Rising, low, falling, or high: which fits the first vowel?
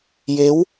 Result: rising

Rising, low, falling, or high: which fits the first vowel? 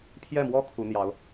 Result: falling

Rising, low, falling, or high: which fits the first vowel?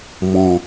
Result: low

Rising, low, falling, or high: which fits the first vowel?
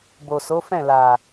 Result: low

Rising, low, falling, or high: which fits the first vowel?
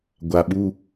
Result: low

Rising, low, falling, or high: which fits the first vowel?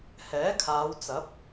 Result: rising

